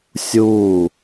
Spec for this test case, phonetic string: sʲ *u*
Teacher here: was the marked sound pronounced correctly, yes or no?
no